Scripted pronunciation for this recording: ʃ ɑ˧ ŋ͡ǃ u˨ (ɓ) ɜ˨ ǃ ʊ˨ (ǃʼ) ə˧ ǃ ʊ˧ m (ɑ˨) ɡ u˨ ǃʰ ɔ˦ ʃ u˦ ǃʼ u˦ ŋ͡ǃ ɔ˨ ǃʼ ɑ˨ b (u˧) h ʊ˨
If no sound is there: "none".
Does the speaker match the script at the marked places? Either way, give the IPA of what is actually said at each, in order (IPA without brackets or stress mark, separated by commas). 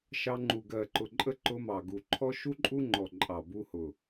ɡ, ǃʼ, ɑ˨, u˧